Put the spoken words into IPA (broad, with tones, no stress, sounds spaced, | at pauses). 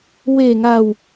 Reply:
w e˨˩ ŋ a˨˩ w